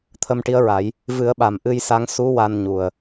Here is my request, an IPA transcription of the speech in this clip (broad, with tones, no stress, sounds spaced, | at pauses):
t̪ʰ ə˧ m ʈ i˧˥ ə̯ ɹ a˨˩˦ j | v ɨ˨˩˦ ə̯ ɓ a˨˩ m ʔ ɨ˧ j s a˧˥ ŋ s u˧˥ w a˧ n ɲ u˨˩ ə̯